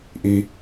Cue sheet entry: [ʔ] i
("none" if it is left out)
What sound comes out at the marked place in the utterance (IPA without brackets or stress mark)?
ʔ